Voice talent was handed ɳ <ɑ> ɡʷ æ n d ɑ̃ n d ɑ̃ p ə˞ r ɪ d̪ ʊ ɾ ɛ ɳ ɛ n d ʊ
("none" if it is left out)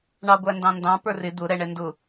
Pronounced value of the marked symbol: ɑ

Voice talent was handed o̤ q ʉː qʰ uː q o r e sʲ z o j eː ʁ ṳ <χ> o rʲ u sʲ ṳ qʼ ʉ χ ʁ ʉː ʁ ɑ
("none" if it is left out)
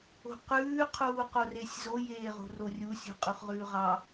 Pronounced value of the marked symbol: r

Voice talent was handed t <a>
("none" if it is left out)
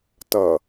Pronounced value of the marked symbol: ʌ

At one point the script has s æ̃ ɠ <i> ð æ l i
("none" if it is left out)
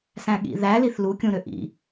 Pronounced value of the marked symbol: ḭ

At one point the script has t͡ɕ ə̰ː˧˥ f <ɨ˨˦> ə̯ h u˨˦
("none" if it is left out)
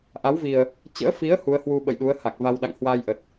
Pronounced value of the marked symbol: i˨˦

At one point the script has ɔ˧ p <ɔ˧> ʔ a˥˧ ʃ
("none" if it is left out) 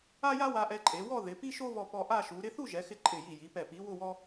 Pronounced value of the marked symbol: ɔ˧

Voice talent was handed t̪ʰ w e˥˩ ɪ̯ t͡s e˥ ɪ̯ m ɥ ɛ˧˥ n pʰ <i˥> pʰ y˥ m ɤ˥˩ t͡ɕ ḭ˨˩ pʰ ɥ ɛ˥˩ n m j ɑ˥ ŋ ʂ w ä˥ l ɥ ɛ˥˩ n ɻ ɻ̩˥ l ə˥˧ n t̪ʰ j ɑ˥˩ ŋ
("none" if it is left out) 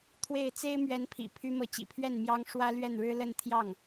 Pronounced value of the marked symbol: ḭ˨˩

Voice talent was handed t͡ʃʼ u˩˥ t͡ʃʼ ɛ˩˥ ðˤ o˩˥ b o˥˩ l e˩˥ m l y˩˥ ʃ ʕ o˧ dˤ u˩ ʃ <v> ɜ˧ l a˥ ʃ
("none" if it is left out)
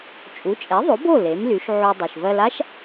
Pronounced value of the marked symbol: v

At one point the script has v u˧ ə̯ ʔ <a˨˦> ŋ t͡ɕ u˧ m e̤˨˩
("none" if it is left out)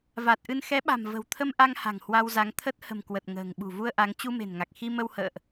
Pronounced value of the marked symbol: a˨˦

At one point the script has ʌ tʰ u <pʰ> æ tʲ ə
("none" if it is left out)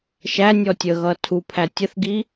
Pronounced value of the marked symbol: pʰ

